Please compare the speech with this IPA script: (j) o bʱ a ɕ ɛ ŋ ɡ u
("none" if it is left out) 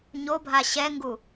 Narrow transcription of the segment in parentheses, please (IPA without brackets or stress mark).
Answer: ɲ